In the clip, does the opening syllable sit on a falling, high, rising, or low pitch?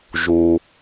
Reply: low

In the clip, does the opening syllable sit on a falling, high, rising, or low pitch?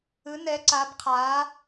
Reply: rising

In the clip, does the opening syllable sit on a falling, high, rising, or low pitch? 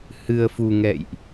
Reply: low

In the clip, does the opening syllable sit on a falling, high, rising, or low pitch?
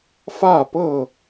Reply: falling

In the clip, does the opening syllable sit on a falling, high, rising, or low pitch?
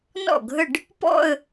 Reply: falling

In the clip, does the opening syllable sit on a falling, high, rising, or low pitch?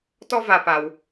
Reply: high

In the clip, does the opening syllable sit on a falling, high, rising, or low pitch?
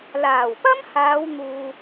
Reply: low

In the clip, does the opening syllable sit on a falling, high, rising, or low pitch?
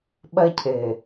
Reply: high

